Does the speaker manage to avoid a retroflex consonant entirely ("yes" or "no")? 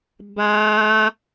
yes